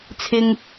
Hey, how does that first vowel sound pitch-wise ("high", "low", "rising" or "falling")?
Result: low